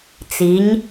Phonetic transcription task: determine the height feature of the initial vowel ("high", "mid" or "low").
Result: high